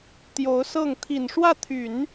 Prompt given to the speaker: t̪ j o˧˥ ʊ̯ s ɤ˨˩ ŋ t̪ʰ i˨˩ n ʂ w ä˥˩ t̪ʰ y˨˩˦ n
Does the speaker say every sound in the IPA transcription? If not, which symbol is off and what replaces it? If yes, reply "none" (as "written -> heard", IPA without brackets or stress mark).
ɤ˨˩ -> ɤ˥˩